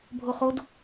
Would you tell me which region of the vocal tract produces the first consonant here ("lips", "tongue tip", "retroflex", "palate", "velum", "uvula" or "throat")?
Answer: lips